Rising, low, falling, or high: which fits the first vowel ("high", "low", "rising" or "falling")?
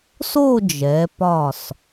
falling